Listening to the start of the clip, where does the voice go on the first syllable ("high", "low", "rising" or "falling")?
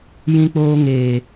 high